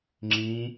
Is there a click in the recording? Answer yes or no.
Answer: yes